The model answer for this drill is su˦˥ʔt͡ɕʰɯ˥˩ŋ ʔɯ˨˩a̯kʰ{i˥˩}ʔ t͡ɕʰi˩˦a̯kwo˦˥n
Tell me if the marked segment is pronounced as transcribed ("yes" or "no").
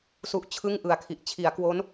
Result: no